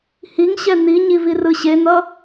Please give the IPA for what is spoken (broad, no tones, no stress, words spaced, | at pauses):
hiŋɕɛ n̪iɲiv irɯɕen̪ʌ